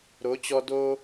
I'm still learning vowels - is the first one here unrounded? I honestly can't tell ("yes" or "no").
no